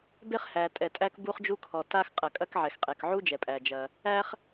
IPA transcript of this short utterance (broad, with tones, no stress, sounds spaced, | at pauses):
b e˥ χ h æ˩ tʼ ɛ˩ tʼ æ˥ k b u˥ χ d͡ʒ u˥ kʰ ɔ˩ t a˥ x qʼ ɐ˩ kʼ ɐ˥ k ʕ ɛ˩ x qʼ ɛ˩ k ʕ u˥ d͡ʒ ɛ˩ pʼ æ˩ d͡ʒ ɐ˩ | æ˥ χ